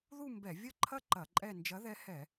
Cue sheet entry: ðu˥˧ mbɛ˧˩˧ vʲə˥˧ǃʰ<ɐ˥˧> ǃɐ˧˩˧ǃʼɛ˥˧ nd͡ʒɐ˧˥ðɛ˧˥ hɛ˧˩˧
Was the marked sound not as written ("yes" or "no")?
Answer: no